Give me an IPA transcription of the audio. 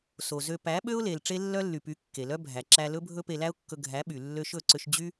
so˨zø˧ pæ˨˦ɓø˦ʊ̯le˨l ʈ͡ʂe˦lːœ˦lːy˨py˨˦ kːe˨lœ˦bʱæ˨ ǁæ˧lɵ˦ bʱɵ˦pe˧læ˦ʊ̯kːɵ˧ ɡʱæ˨˦ɓy˨ lːø˧ʃɵ˦˨ǀø˧ʃ d͡ʑy˦

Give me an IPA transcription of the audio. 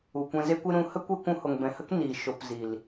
u˨kʷɛ̃˧ze˦kʷe˦ ɾũ˧hə˦ kʷe˦kʷũ˧ho˨ŋ bɛ̃˨hə˦k niː˨ ʃo˨p ziː˨l

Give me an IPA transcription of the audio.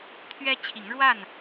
t̪ʰɥɛ˦ t͡ɕʰi˨˦ŋɻwa˥˨n

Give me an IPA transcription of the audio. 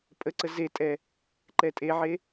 pʼəǀə zetʼɛ | ǃɛtʼeʕe

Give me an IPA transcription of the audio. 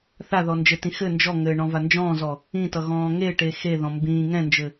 θaðɔ nd͡ʒɘtĩ xɘ nd͡ʒɔŋɘː ɳɔ̃vand͡ʒɔ̃ːzɔ | ĩtʌ ɣɔ̃ːŋeʈe xeðɔ̃ mbĩː ŋɛ̃nd͡ʒɘ

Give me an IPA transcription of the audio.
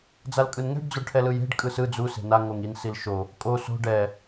d͡zalkʼɯnŋɛ̤ɖ d͡zoɖʈʰɛlɯje̤ɖ kʼɯsɯ d͡zu se̤na ŋoŋin silʃo | kʼo so̤ ɖɛ

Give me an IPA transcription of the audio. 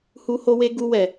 hu˧ho˧we˧ ɡu˧ wɛ˨

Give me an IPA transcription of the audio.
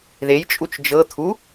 ðej t͡ʃʼut͡ʃd͡ʒɤ t̪ʰu

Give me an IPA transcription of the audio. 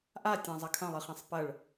ʔatʲã zˤɐkʰɐ̃lˠɨχẽsˤ pɐɭ

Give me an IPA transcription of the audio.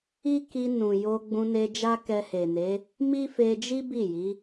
i˦ ki˧nũ˨ jo˧ɡ͡bũ˧ne˧ d͡ʒa˦kɛ˧he˨ne˨˦ | mi˦fe˧d͡ʒi˦ bi˦˨ji˨˦

